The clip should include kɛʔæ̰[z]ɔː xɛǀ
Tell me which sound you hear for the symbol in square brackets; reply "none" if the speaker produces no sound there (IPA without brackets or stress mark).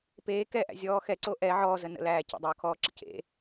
zʲ